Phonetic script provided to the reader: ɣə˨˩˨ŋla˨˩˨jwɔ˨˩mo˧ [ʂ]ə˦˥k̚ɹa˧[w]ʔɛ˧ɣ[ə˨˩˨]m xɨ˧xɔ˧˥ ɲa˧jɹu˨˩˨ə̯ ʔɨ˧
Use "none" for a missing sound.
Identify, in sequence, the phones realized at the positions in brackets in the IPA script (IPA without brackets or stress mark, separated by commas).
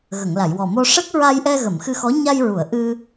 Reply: ʂ, j, ə˨˩˨